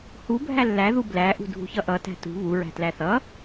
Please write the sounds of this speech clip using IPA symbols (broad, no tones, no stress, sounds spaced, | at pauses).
h u bʱ æ lː æ ð u b l æ ʔ ṳ dʱ ṳ ç ʌ ʔ ʌ t æ̤ t ṳ β u ɹ æ̤ t l æ θ ʌ